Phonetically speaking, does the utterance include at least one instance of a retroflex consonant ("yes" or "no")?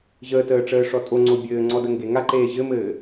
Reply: yes